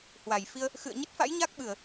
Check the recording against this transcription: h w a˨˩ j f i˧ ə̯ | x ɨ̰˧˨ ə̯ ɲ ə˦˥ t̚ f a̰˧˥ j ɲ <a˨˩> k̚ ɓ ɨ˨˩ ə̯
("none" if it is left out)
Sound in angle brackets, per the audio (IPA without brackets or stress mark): a˦˥